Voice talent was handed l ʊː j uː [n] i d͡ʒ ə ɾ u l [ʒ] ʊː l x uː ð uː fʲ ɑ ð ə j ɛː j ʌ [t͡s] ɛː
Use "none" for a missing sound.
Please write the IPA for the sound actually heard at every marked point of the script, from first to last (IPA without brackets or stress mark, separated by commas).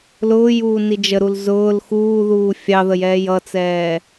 n, z, t͡s